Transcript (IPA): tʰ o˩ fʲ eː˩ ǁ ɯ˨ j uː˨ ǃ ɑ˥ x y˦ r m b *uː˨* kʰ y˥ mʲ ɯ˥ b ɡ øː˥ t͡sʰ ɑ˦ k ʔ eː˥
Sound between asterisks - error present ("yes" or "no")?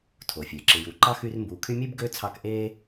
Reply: no